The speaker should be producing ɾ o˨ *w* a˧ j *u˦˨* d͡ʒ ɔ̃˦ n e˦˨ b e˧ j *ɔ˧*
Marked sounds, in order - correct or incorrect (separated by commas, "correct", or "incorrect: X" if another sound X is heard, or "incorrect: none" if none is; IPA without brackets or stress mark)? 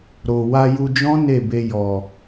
correct, incorrect: u˧, incorrect: ɔ˨